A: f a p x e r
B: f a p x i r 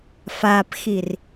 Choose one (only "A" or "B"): B